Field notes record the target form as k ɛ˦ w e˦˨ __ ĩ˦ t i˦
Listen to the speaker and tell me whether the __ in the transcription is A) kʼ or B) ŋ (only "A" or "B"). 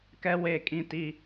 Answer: A